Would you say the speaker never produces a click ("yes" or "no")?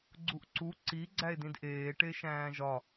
no